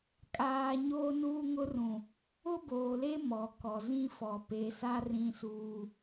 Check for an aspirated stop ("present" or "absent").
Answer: absent